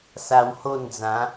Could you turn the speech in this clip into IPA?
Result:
s a˧ w h o˥˧ n d͡z ã˨˦

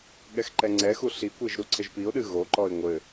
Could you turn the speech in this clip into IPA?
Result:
ɠ ɛ x ǃ ɛ ŋ͡ǀ ɛ x u ɬ i kʷ e ʒ ɾ u ǀʰ ɘ ʒ p i ʊ̯ ɗ ɨ ɣ o ǃ ɔ ɪ̯ ŋʷ ɘ

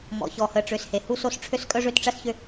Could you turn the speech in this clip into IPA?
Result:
m ɔ̰˨ ç ɔ˨ h ə˨ ʈ͡ʂ ʏ˨ s h e˨ h u˦ s o˦ s ʈ͡ʂʰ ø˦ s kʼ œ˦ ʐ ø˦ t ʈ͡ʂ ɐ˦ s ç ʏ˦

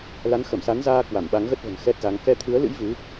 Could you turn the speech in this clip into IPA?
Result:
l a˨˦ n x ə˧˩ m s a˨˦ n z aː˧ k w a˧˩ m ɓ a˨˦ ŋ ɣ ə˦˥ t̚ v ə̤˨˩ n x ɛ˦˥ t̚ z a˨˦ ŋ k ɛ˧ t̪ʰ ɨ˨˦ ə̯ l ɨ̰˧˥ j v ɨ˨˦

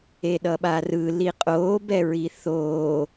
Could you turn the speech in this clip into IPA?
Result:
e ɗ ʌ ɓ a r ɯ l i qʼ oː b ɛ ɹ i θ oː

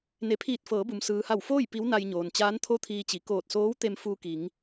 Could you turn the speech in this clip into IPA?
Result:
n e˩˧ pʰ iː˧˩ t̚ f ɤː˩˧ b u˩ m s ɯː˩ h a˧˩ w f oː˥˨ j p i˧˥ w n a˧ j ɲ oː˩ n t͡ɕ aː˧˥ n t̪ʰ o˥˨ t̪ʰ iː˧ t͡ɕ i˩˧ k oː˧˩ t̚ s oː˧˥ w t̪ e˧ m f uː˧ k i˩˧ ŋ

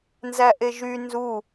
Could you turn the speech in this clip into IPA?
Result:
n z æ ʔ e ʒ y n z u

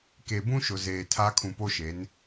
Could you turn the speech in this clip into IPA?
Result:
k e˨ b ũ˦ ʃ ʊ˨ z eː˨ tʰ a˦ kʰ ũ˨ p o˦ ʃ e˨˦ n

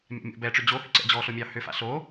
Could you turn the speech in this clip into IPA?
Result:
mʲ a̰ mʲ o̰ b ɛ ʈ͡ʂ ʏ d͡ʑ o h ʏ ǀ ɛ̰ d͡ʑ ɔ ɬ o mʲ ɑ h ʏ f a̰ ɬ o

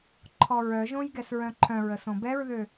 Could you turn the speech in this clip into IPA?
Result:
ǃʰ ɔ ɹ œ ʒ õ j ɡ ɛ s ɹ œ̃ ǃʰ œ̃ ɹ ə s õ b ɛ ɹ ð ø

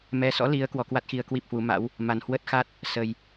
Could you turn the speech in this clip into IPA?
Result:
m ɛ˧ s ɔ̰˧˥ l i˨˦ ə̯ k w ɔ˨˦ k w a˦˥ t̚ x i˧ ə̯ k w i˦˥ p̚ h w u˨˦ m a̰˧˥ w | m a˨˩ n h w ə˦˥ t̚ x a˦˥ t̚ | s ə˨˩ j

